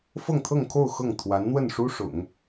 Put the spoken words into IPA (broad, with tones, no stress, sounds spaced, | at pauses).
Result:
f ɤ˥˧ ŋ t̪ʰ ɤ˥˧ ŋ kʰ o˥˧ ʊ̯ x ɤ˥˩ ŋ t̪ʰ w a˧˥ n n̪ w ə˥˩ n ʂ u˥ ʂ ʊ̰˨˩˦ ŋ